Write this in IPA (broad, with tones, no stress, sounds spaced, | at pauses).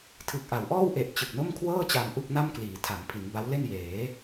tʰ ɯ˨˩ k̚ ʔ a˩˦ w ʔ ɔː˥˩ w ʔ e˨˩ ʔ t͡ɕ ɯ˨˩ k̚ n o˥˩ m kʰ w ɤː˥˩ t͡ɕ a˧ m ʔ u˥˩ k̚ n a˥˩ m k l iː˩˦ tʰ a˩˦ m pʰ i˩˦ n b a˦˥ w l e˥˩ n j eː˩˦